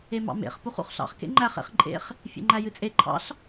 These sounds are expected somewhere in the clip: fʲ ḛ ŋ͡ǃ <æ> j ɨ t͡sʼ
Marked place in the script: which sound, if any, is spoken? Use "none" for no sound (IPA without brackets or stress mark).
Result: æ